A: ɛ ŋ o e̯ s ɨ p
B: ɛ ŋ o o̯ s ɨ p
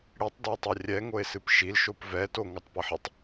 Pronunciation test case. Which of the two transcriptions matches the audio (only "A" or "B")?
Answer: A